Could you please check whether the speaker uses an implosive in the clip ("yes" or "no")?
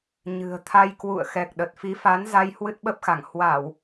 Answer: yes